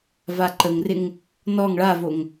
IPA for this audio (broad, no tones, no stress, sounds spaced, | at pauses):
v a ǃ ə ŋ r ɪ ŋ | n ɔ ŋ ɭ a v o ŋ